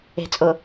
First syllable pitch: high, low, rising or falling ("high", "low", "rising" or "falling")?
low